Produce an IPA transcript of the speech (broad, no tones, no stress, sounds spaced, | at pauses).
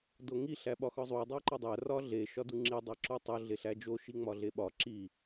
d o ŋ i ɬ æ ɓ ɒ x ɒ zˤ u dˤ æ ǃ ɒ dˤ æ r ɒ ɮ e ʃ ɒ d u ŋ͡ǁ i dˤ æ ǁ u tˤ o ɮ e ɬ æ d͡ʒ o ʃ i ŋ͡m ɒ ɮ e ɓ ɒ ǁ i